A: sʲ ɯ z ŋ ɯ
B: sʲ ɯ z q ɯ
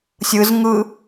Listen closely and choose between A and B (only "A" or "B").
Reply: A